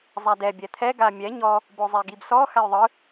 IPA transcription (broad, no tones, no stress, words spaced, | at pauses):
zˤadɛ bʲɛt̪ʰɛ ɡamʲɛ ɲɔ | bozˤɛɡibsɔ xajðˤɯ